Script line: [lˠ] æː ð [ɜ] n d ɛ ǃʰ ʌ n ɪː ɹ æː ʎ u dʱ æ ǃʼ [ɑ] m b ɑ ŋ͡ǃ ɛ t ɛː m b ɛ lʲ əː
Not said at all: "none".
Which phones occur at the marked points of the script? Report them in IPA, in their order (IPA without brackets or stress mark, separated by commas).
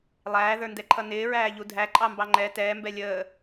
lˠ, ə˞, ɑ